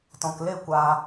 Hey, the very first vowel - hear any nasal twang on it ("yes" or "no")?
yes